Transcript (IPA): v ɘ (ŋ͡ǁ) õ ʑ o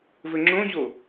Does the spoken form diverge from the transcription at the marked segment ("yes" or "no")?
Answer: no